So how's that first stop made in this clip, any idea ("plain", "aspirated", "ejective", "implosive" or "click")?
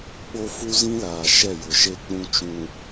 implosive